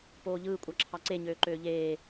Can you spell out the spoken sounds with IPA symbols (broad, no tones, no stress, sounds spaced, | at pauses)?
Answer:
p oː ʎ ɯː kʷʼ ɑ ǁʰ ɑ ǀ e ɲ øː ǃ øː ʎ eː